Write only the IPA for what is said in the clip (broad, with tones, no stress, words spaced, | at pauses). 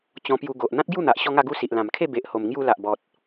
t͡ɕɔ̃˧pju˧ɡo˨ʔ n̪ã˦t̚ɡju˥˧n̪a˨ʔ ɕɔ˦ŋa˥˧ɡu˦si˨ʔ lã˨˩mkʰe˥˧ be˨ʔho˨˩m ŋju˧la˨ʔ bɔ˨t̚